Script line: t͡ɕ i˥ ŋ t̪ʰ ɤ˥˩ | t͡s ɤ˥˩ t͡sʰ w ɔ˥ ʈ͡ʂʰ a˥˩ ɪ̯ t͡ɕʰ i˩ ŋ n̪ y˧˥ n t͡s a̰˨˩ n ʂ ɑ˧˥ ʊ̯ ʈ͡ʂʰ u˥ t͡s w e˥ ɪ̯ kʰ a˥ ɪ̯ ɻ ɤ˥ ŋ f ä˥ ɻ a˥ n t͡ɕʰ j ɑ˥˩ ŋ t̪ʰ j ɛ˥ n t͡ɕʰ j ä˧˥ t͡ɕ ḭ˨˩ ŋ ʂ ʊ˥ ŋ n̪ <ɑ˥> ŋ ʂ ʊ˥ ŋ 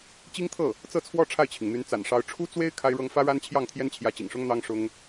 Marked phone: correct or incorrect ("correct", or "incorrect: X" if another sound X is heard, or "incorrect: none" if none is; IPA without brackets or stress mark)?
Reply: correct